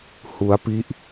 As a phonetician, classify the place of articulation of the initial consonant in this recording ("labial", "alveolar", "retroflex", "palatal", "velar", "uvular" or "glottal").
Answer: glottal